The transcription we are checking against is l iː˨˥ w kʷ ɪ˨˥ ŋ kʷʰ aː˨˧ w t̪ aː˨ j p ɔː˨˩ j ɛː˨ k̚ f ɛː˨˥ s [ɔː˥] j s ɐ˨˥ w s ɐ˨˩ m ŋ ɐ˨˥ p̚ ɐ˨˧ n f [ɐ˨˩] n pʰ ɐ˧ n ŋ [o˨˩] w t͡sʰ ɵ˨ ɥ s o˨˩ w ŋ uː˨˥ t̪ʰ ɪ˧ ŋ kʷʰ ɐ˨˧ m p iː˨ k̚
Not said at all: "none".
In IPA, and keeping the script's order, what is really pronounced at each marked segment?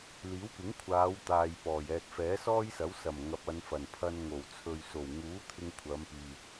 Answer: ɔː˥, ɐ˨˩, o˨˩

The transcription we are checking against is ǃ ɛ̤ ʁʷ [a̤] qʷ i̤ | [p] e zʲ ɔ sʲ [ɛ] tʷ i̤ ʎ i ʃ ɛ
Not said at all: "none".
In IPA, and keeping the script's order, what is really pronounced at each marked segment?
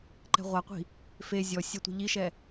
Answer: a, f, ɛ

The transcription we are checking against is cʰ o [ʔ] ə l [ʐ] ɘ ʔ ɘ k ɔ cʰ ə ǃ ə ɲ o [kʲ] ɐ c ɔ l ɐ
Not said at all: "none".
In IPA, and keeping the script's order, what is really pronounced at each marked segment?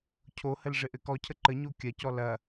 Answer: h, ʐ, kʲ

